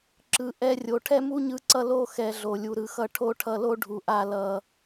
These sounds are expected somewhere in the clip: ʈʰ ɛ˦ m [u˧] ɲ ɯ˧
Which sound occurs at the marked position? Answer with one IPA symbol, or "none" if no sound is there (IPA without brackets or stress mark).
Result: u˦